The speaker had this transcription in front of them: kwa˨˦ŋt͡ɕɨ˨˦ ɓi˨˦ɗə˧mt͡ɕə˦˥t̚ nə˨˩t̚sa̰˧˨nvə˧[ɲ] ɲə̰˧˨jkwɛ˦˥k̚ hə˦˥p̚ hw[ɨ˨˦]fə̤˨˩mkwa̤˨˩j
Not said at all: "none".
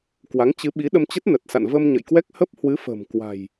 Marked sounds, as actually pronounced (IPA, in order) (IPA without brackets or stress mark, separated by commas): m, ɨ˨˦